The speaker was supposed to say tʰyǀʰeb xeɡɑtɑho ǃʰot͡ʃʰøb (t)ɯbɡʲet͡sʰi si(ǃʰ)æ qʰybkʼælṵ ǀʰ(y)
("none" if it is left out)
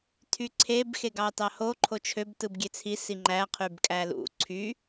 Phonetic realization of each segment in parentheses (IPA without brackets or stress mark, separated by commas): t, ŋ͡ǃ, y